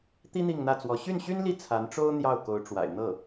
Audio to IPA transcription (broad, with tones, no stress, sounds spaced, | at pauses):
t̪ i˥ n̪ i˥˧ ŋ n̪ ä˥˩ t͡s w ɔ˧˥ ɕ y˥˩ n ɕ y˥ n l i˥˩ t͡sʰ a˧˥ n ʈ͡ʂ o˥ ʊ̯ n̪ j ɑ˥˩ ʊ̯ k o˧˥ ʊ̯ ʈ͡ʂ w a̰˨˩ ɪ̯ n̪ ɤ˥˩